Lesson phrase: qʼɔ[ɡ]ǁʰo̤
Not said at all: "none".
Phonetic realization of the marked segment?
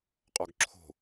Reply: ɡ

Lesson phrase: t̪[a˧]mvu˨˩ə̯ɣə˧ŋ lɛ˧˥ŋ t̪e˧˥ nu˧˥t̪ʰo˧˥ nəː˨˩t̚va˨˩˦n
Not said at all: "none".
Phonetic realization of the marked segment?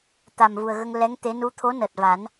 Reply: a˨˩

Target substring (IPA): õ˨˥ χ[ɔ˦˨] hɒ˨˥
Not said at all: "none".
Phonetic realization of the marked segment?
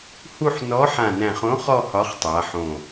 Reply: ɔ˦˨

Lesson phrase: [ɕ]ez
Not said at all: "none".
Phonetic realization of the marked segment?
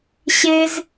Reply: ɕ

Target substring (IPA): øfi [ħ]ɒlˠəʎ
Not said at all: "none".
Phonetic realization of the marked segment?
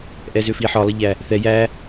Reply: ħ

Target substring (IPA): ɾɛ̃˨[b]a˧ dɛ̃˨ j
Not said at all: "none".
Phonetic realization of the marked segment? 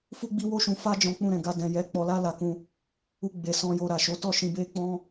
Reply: ɡ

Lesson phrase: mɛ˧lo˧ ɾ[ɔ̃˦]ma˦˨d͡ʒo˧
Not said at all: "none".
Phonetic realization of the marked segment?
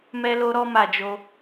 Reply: ɔ˦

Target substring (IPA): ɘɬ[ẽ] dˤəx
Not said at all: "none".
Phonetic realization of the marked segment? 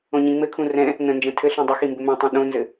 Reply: ĩ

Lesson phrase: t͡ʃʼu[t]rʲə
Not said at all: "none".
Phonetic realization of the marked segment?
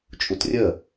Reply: t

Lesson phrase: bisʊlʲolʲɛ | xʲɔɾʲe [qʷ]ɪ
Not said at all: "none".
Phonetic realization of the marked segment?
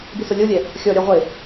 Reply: ʁʷ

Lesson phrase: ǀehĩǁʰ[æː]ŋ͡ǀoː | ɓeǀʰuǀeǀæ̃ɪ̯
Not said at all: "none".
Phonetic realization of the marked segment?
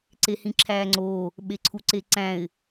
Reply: æː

